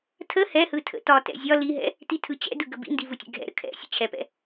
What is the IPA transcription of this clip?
tʰə hɛhɯ tʰə̰tɒtɛ̰ zʲɒ liɦɛ̰ | titʰɯt͡ɕɛ̰dɯ ɡəbḭndi vɯtʲɛ̰ɡʱɛ̰ɾə̰ kʰɛ̰ sʲə̰t͡ɕʰɛpɛ̰

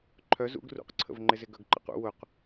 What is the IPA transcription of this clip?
ǃʰœ zṵɡ rṵqǀʰə̰vŋ͡ǃɪzɪ ɡœɡǃə̰qṵ wʊq

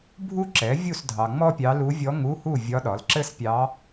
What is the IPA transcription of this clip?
bʱu˥ǁɛ˩˥ vʲu˥˨sdʱɑ˨ŋ͡mɔ˥pʲɑ˧˥ lu˧˥vʲɔ˧˥ ŋu˧˥˧hu˥˨ vʲɒ˧˥ɗɒ˩˥lǁɘ˥spʲɑ˧˥

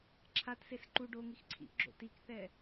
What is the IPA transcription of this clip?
ǁʰatses ǃu ɖoŋix ǀʰḭʔɡ͡ǁo̰ tikθɛ

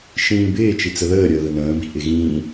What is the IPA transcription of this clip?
ʃĩːbɪː t͡ʃit͡səðəː ɾʲəːðənə̃ː bi̤ʔɪɣĩː

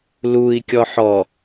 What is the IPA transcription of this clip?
lui̯ kʲɔħɔ

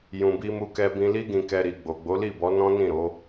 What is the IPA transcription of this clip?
jũ˨bi˧mu˧kɛ˧ bĩ˧li˦ɡĩ˧kɛ˧ ɾi˨ ɡ͡bo˨ɡ͡bo˨˦li˦˨bɔ˨˦ nɔ̃˦nĩ˦˨ɾo˨˦

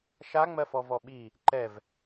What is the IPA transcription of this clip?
ʃa ŋ͡mɜfɔvɔɓi | ǃɛv

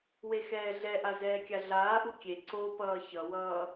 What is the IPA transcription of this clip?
wexɛːɮɛʔa zɛːkʲaɮaːʔu kʲe ǀopʌː çʌwʌː

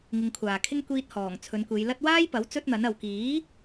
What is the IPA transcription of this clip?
ŋɪ˧ŋkʷʰaː˨kʰɪ˥ŋ kʷiː˧t̚ hɔː˨˩ŋ t͡sʰɵ˨˧nkʷe˨˧jlɐ˥t̚ waː˥jpɐ˨˥w t͡sɵ˥t̚n̪ɐ˨˥n ɐ˨wkiː˨˥

